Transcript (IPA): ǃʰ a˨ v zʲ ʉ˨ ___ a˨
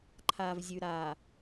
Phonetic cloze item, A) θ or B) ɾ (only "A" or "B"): B